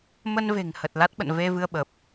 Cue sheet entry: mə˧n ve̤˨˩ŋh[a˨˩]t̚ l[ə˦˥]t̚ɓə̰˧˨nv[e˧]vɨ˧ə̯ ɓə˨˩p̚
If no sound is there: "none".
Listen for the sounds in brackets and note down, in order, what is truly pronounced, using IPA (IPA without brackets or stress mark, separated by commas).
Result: ə˨˩, a˦˥, e˧